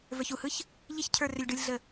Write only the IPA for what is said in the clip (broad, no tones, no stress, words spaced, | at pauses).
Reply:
və˞çuhɯç | ʎiçcʰə˞ rʏlʲɖɯlʲɮə